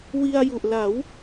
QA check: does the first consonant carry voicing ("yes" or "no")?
yes